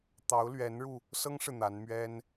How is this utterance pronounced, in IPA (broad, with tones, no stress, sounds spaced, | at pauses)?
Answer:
t̪ ɑ˧˥ ʊ̯ l ɥ ɛ˧˥ n ɻ u˧ | s ɤ˥ ŋ ʂ ɻ̩˨ n̪ a˧˥ n m ɥ ɛ˥ n